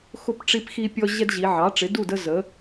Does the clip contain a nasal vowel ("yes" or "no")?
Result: no